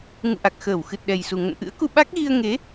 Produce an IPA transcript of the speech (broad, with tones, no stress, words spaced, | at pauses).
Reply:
ŋṵ˧˨ʔa˨˩k̚ xəː˧˩wxɨ˨˩t̚ɗɛ˨˩jsu˨˩ ŋə̰˧˨nʔɨ̰˧˥ə̯ku˧ ɓa˦˥k̚ɣi˧ə̯ ŋe˨˦